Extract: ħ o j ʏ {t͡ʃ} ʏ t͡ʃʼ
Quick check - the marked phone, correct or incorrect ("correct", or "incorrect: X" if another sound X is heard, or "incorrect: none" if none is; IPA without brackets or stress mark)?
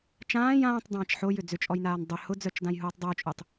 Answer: incorrect: d͡z